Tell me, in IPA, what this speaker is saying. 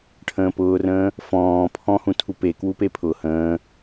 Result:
ʈʰ ə̃ː p ʊː r ə̃ː | f ɔ̃ː pʰ ɔ̃ h ũ tʰ u p e k w u p e pʰ ʊ h ə̃ː

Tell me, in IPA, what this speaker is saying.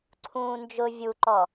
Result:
ǀʰ ũː n d͡ʒ ʊ vʲ u ǃ ɔ

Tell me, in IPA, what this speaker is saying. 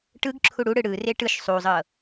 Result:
ʈ ɯ ɡ ǁʰ u ɽ u ɽ ɯ ɽ ɯ r e ʈ ɯ ʃ sˤ u zˤ ɤ

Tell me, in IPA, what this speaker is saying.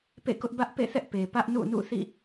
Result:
p ḛ˦˨ k ʊ˦ ʔ b ä˦ ʔ p ḛ˦˨ θ ɛ˦ ʔ p e˨ p ä˦ ʔ n ṵ˦˨ n ṵ˦˨ θ ḭ˦˨

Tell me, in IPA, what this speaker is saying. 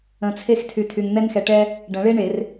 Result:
ə̃˧ t͡sʰ e˥ x tʰ y˧ tʰ y˧ ŋ n̪ ɛ˥ n x ɛ˧ ʈ ɛ˥ | ɖ ə̃˨˩˦ ɭ e˥ ɳ e˨˩˦ r

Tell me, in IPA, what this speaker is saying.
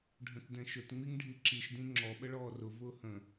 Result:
ɖʱ ə̃ t d ɛ̃ ʃ ʊ t ŋ͡m i ŋ ɖʱ i ǁ i ʃ d ĩ ŋ͡ǁ ɔ ɓ ə ɭ ɔː r ʊ v ʊː h ə̃

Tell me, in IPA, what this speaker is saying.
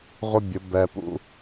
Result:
ʁʷ ə˦ bʲ ʊ˨˦ b ɛ˧ p ṵ˦

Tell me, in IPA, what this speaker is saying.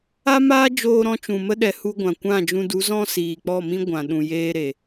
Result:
a˦ m aː˦ d͡ʒ oː˧ ɾ ɔ̃˧ t͡ʃ ũ˨ m ə˦ ɗ ɛ˨ h u˧ ɡʷ ã˨ kʷ ã˦˨ d͡ʒ ũ˧ d u˨˦ z ɔ̃˦ s iː˨ k͡p ɔ˦˨ m ĩ˦ ɡʷ ã˨ ɗ ũ˨ j eː˦ ɾ e˨

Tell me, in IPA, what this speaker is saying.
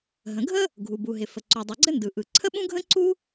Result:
ɦ ə̃˩ ɡʱ ə˥ | ɡʱ u˩ b u˩ ɦ ɪ˩ f ə˩ ǀ u˩ dˤ ɯ˩ ɡ͡ǀ ɘ˥ n d ɯ˩ ʔ ɯ˩ ǀʰ ə˥ ɓ ũ˥ ɡʱ ə̃˥ ǀ u˥

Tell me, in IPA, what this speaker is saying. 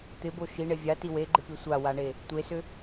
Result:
t̪ ɪ b o ʃ i ɳ e vʲ a t i w e ɡ͡ǃ ɪ p i sʷ a w a ɳ e | tʷ e s ʏ

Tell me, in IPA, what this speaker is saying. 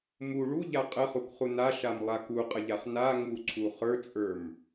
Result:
m u ɭ u ʎ a qʼ ə χ u k χ u n a ʃ a m lˠ a k u qʼ ə ʎ a χ n a ŋ u ǀʰ u χ ə˞ t͡sʼ ə˞ m

